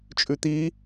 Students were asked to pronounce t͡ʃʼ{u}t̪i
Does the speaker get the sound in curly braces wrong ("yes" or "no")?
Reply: yes